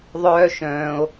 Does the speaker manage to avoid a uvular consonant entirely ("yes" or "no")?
yes